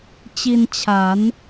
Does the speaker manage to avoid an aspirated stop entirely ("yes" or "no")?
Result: no